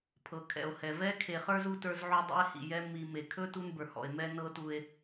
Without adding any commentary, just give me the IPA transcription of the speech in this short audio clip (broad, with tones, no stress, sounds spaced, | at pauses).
pʰ ɤ˩ kʰ ɛ̰˩ o̯ h ɛ˩ v ɛ˦ kʰ e˨ χ ə˞˥ z u˥ t ə˞˦ z ʕ u˦ dˤ ḭ˦ e̯ h ḭ˩ j ɛ˦ m i˨ m e˩ kʰ ɵ˥ t u˦ n b ə˞˩ h ɔ̰˩ e̯ m ɛ˥ n ɤ˦ t u˨ e̯